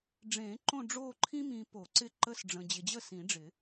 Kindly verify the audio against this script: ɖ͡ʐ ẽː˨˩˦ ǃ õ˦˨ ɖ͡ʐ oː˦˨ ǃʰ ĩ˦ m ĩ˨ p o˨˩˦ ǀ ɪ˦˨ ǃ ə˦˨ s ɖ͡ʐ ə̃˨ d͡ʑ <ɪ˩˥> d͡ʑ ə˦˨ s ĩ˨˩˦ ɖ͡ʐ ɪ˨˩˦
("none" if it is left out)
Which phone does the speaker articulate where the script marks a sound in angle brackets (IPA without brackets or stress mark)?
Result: ɪ˨